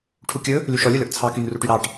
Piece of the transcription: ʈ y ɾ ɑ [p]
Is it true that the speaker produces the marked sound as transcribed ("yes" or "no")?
no